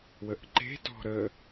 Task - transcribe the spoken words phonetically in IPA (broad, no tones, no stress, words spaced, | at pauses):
wəʔǃe̤ tɔ̤ɾə